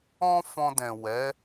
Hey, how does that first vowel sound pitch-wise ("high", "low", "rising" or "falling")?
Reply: high